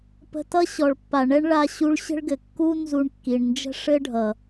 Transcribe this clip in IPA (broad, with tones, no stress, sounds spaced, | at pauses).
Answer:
p ə̤˧ t ʌ˦ ɕ ɔ˨ ɭ pː a˨ ɳ ɛ˦ ɳ ɭ a˧ ɕ u˧ ɭ ɕ ə̤˦ ɭ ɡ ɘ˨ kː u˦ n z u˧ ɳ kː i˨ ɳ n d͡ʒ ə̤˦ ʂ ɘ˦ ɖʱ ʌ˨